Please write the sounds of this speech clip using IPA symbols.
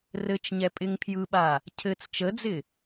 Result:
r ɘ t͡ʃ ɲ ɛ pʼ ɪ ŋ pʰ j ɯ ɓ a | cʰ ɘ t͡s t͡ʃ ə d͡z ɪ

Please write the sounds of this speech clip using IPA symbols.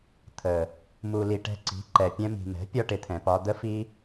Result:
t̪ʰ ə˨ | m u˨ l i˨ ʈ ɛ̤˧ ǀ i̤˨˦ ǃ ɛ˨ pʲ ɛ̃˧ m i̤˨ m ɛ̤˨˦ pʲ ɒ˦ ʈ ɪ˨ t̪ʰ ɛ̃˨ p ɒ˧ d̪ ə˦ f i˦

